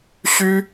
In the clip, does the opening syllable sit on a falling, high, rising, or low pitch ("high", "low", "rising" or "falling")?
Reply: high